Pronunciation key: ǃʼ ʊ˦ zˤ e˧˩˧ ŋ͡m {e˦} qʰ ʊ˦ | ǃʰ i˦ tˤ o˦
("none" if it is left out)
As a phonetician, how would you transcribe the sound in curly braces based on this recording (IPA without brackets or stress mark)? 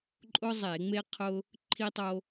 e˦